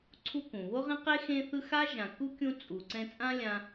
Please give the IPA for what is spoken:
ǀʰ u˦ k ũ˩ β o˥ ʁ ẽ˥ q e˥ x ẽ˦ θ ɯ˦ x a˥ ʒ ã˨ k u˥ kʲ ũ˦ t͡sʼ u˨ ǀ ɛ̃˦ t͡sʼ ã˥ lʲ ã˦

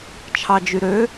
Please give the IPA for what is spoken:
t͡ʃʰ ɑ d͡ʒ y ɾ ø

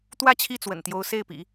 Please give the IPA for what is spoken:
t̪ w ä˥˧ t͡ɕʰ i˥˩ t͡s w ə̰˨˩ n t̪ j o˧˥ ʊ̯ s e˥˩ ɪ̯ p ḭ˨˩˦

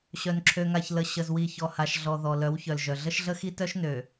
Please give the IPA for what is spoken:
ɕ œ˨ n ǁʰ ø˨ ŋ a˨ ç l ə˨ ɕ ə˨ z w i˨ ç ɔ˨ h a˨ ʃ ɮ ɔ˨ ð ɔ˨ l œ˨˦ w ç œ˨ l ʒ œ˨ ɮ ə˦ ʃ ɮ ə˦ x i˦ t œ˦ ʃ n ø˨

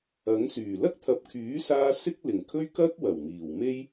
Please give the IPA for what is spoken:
ɐ˨˥ ŋ s yː˨˩ l ɐ˥ k̚ t̪ʰ ɐ˨ p̚ kʰ yː˨˥ s aː˧ s ɪ˥ k̚ l ɪ˨˩ ŋ kʰ ɵ˥ ɥ k ɐ˥ k̚ w ɐ˨˩ w m iː˨˩ w m e˥ j

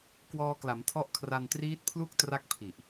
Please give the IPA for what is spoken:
k w ɔː˧ k l a˩˦ m tʰ ɔ˦˥ ʔ kʰ r a˧ n t r iː˦˥ t̚ pʰ l u˥˩ k̚ t r a˥˩ k̚ pʰ i˨˩ ʔ

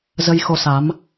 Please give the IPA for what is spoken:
z ə˧ j x o˧ s a˨˦ m

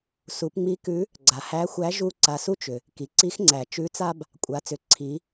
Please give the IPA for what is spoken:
s u˩˧ p ŋ͡m i˧˥ k ʉ˧˥ | ɡ͡ǀ a˩ h æ˧˥ xʷ æ˧˥ ʒ u˥ ǀ a˧ s u˥ t͡ʃ ʏ˩ | k i˩ ǀ i˧˥ x ŋ͡ǀ æ˩ t͡ʃ ʉ˧˥ t͡s a˥ b | kʷʼ a˩˧ t͡s ʏ˩˧ ǀʰ i˩˧

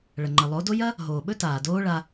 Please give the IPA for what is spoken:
ɭ ɐ˨ ŋ͡ǃ ə˨ lˠ o˨˦ d o˦ j ɐ˦ | ɦ oː˨ ɓ ɵ˦ t aː˨ d oː˦ ɭ a˧

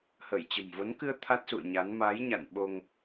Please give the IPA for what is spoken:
h ə˧˩ j t͡ɕ ə̤˨˩ m v o˨˦ n k ɨ˧ ə̯ t̪ʰ a˦˥ t̚ s ṵ˧˨ ə̯ ɲ a˨˦ n m a˨˦ j ɲ a̰˧˨ n ɓ o˧ ŋ

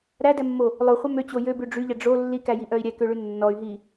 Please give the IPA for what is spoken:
ɾ æ d ɛ mː o | lˠ o χʷ œ m ø t͡ɕ o j ø b ʉ ɖ͡ʐ y ʎ ɛ ɖ͡ʐ o lː i k æ j i ʔ œ i̯ ɾʲ ɛ k ø ɭ ʉ nː ɔ y̯ ɦ i

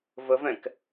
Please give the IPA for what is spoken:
v ə v ɛ̃ k

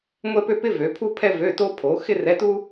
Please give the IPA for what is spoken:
ŋʷ ɛ˥ p ø˥ p ɪ˥ v ø˨˦ pʰ u˥ pʰ ɛ˥ v ø˧˥˧ t o˥ pʰ o˨˦ x ɪ˥ r ɛ˧˥˧ t u˥

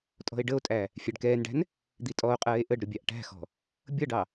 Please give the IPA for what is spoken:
tʼ ɔ̤ e̯ ɖ ə o̯ tʼ æ | fʲ æ ɖ k ɛː n ɖ æ̤ n | d̪ i tʼ ɔ o̯ qʼ ɜː e̯ ʔ ə ɖ ɾ ʊ bʲ ɑ ʔ ʈ æ̤ x ɔ̤ | bʲ ʌ ɖ ɑ

